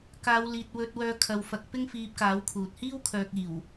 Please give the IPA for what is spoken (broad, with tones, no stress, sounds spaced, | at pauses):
k aː˨˧ w l iː˨ t̚ w ɵ˨ t̚ w œː˨˧ kʰ ɐ˨ w f ɐ˨˥ k̚ p ɪ˥ ŋ f iː˧ p̚ k aː˨˥ w kʰ uː˨ t̚ h iː˥ w kʰ œː˨ k̚ iː˨˩ w